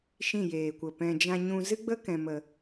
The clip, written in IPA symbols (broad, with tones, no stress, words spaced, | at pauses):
ʃĩ˦˨jeː˨kʷə˨pɛ̃˧ d͡ʒã˧ɲũ˧ zɨ˦ɡ͡bə˦ kɛ̃˨mə˨